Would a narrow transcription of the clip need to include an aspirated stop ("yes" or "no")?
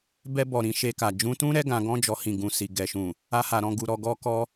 no